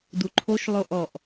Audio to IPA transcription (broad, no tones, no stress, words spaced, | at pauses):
duǃʰoʃ lˠoʔɔʔ